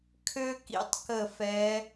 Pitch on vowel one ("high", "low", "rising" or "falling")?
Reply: high